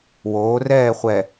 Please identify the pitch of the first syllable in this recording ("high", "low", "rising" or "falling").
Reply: rising